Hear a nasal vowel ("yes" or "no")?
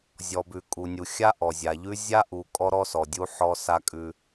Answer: no